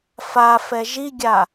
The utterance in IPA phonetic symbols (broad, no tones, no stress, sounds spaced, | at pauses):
f a f ɛ ʒ i ɡʲ a